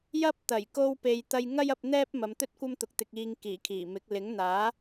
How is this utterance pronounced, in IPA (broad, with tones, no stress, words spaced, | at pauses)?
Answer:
jɐ˥p̚t̪ɐ˨˩j ko˧wpe˨jt̪ɐ˧j ŋɐ˥jɐ˧p̚ n̪ɛː˥p̚mɐ˨˧mt̪ɵ˥t̚ kʷɐ˥mt̪ʊ˨k̚ t̪ɪ˨k̚iː˨ŋ kiː˨˩kʰiː˨˩mɪ˨˥k̚ lɪ˨˥ŋn̪aː˨˥